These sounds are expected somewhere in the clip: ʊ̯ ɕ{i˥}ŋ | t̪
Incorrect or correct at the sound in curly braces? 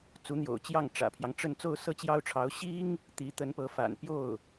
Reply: correct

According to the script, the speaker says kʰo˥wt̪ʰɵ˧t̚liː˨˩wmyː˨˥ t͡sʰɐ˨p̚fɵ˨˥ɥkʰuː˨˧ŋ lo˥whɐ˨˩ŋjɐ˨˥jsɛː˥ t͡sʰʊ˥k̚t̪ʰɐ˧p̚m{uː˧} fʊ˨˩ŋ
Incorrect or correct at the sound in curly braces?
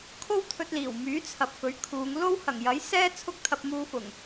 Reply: correct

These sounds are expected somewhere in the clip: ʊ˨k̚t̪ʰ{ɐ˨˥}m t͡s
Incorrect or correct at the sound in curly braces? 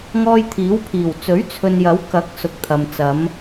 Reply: incorrect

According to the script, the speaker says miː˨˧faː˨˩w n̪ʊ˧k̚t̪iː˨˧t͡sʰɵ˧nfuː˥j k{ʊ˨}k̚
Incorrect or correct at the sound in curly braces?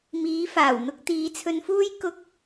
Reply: incorrect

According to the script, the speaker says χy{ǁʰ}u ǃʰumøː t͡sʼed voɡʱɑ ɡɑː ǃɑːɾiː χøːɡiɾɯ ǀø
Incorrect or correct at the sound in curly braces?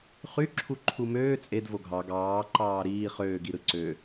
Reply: correct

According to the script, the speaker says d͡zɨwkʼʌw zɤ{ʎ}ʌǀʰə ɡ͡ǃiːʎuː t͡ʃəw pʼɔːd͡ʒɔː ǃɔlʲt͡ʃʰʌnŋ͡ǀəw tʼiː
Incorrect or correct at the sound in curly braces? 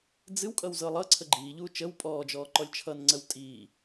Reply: incorrect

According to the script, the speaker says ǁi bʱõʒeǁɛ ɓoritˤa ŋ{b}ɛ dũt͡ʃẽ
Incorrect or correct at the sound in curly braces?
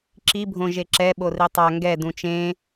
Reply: incorrect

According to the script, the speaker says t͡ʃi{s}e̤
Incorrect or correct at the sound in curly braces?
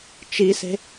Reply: correct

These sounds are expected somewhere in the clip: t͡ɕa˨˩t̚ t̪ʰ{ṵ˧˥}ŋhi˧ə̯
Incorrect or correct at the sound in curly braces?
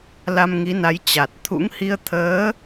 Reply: correct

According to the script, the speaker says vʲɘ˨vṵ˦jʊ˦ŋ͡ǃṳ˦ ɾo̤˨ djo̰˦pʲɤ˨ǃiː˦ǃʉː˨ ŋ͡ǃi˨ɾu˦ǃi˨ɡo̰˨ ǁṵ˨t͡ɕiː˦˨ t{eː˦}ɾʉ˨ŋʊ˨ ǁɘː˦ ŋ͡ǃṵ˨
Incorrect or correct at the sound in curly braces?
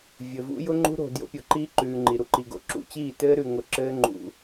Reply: incorrect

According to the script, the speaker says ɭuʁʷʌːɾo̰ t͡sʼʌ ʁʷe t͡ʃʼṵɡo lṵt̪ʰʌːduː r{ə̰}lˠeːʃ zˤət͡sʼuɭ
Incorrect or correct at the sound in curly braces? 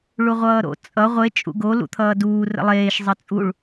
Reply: correct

